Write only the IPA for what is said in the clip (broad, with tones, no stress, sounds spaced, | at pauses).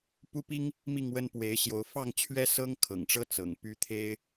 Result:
p u˦ p i˦ ŋ | m i˥˨ ŋ w ə˦ n p w e˨˦ ɪ̯ ɕ j o˨˦ ʊ̯ f ɑ˥˨ ŋ t͡ɕʰ ɥ ɛ˦ s ɤ˦ ŋ kʰ ɤ̰˨˩ ŋ ʈ͡ʂ ɤ˦ t͡s ɤ̰˨˩ ŋ p y˦ t̪ʰ e˦ ɪ̯